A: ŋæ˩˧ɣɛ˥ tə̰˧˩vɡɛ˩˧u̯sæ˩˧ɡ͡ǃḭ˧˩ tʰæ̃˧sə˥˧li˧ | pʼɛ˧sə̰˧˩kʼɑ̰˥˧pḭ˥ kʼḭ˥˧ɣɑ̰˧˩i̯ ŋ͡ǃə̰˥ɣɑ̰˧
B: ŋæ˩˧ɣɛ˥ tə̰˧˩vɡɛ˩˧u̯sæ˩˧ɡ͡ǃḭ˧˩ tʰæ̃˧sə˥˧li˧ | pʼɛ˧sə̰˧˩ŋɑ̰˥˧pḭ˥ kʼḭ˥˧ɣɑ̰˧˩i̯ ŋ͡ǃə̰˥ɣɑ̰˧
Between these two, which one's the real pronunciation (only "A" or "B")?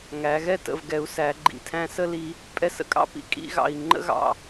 A